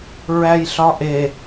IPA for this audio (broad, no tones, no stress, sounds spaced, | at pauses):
ɹ æ j ɬ ɒ ʔ e